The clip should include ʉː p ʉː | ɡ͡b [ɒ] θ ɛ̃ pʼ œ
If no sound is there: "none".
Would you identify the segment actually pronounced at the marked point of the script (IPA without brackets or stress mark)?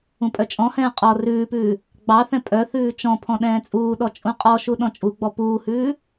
ɑ